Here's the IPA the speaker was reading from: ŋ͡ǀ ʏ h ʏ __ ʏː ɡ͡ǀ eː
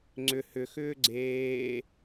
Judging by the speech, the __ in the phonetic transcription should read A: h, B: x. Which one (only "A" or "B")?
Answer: B